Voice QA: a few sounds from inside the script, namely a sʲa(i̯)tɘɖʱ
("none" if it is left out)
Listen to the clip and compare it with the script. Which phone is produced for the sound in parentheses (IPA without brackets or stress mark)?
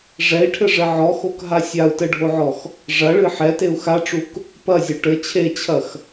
u̯